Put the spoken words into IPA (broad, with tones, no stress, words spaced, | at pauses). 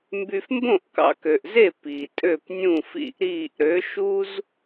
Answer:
mby˧fmbõ˥˩ʔ kɑ̰˧kø˩ʔze˥˩ pi˩ tʼø˥˩pnʲũ˥˩fḭ˥˩ʔɾiː˥˩ʔ ɾø˩˥ʃu˥z